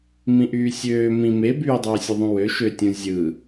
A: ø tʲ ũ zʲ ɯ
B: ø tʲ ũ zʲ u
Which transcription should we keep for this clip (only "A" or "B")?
A